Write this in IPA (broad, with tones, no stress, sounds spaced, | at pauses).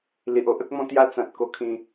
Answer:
l i˨ ʔ o˦ ʔ ə˦ k̚ m ɔ̃˥˧ t̪ j a˦ t͡s ã˨ t̚ k o˧ kʰ ĩ˧